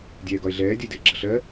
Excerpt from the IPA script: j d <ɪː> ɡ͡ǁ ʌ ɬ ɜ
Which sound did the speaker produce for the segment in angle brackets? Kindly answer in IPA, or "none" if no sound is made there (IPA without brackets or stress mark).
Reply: ɪː